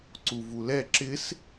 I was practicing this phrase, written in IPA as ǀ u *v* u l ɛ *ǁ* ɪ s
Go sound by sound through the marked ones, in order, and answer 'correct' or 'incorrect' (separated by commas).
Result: correct, correct